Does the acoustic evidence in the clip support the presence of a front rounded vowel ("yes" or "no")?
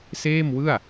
no